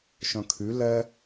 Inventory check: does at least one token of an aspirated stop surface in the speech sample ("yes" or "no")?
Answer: yes